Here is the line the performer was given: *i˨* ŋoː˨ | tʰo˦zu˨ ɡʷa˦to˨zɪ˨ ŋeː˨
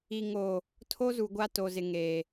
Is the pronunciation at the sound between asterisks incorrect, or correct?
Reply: correct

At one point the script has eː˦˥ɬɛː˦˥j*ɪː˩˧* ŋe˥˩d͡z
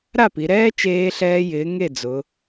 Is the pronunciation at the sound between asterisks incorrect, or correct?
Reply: incorrect: ɪː˨˥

